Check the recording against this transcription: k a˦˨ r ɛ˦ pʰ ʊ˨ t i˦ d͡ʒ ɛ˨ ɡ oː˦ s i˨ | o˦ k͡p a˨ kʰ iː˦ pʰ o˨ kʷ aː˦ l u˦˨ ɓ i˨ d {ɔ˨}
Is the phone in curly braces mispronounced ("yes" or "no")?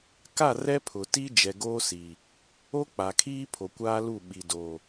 yes